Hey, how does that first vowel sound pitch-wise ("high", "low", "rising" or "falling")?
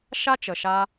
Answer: high